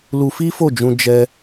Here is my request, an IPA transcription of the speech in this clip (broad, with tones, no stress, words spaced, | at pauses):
lu˧fi˦fo˦˨d͡ʒũ˧ d͡ʒɛ˧